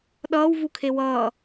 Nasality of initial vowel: oral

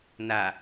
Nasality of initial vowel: oral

